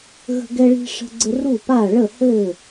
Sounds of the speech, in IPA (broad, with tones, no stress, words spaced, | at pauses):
ɣə̤˦ɡɛ˦ɭi̤˦ ʂə̤˦ɡ͡ǀɘ˦ ru˥˨pa˥˨ ɭə˥˨hɘ˥˨